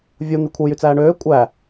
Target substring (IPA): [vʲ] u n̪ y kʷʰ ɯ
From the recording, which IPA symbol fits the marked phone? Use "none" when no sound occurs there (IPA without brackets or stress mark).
vʲ